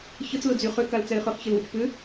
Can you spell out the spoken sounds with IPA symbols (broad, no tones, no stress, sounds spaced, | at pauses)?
ç ə t͡s l ʊ d͡z y χ ʏ k a l t͡s ɛ ɪ̯ χ ʏ χ ç e l w ʏ t͡ʃ p ʏ